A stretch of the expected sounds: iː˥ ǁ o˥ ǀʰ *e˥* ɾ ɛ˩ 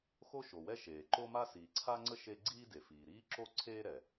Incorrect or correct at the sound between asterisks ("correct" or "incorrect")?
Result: incorrect